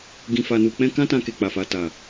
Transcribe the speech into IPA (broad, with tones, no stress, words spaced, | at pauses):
ɡĩ˧fa˧nu˧k͡pɛ̃˦ kã˦tã˧ke˨ k͡pa˨fa˨ta˨